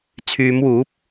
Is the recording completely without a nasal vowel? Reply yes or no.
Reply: yes